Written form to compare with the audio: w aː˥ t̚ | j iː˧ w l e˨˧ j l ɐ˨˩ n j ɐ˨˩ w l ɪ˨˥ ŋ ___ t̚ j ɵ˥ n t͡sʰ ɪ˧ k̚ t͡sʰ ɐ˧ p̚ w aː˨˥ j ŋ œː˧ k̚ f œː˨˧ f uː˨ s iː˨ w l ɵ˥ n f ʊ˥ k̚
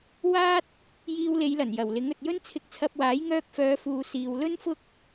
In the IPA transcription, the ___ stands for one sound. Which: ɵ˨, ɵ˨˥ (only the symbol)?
ɵ˨